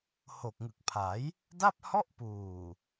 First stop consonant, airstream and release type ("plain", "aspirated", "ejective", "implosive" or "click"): plain